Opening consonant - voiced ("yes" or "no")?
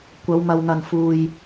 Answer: no